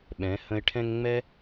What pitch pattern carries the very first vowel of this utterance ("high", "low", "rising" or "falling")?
rising